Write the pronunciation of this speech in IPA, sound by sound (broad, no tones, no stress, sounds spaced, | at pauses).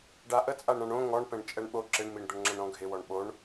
ɖ a ʔ ə t͡sʼ a ɳ ɾ ã ɳ õ ŋ ɔ ɳ p ɛ̃ ɳ t͡ʃʼ ɛ ɳ ɓ o ǁ ɪ ɳ m i ɳ d̪ ə ɳ ŋ͡ǁ ə̃ ɳ ɾ ɔ̃ ɡʱ ɪ w ɔ ɳ ɓ o ɳ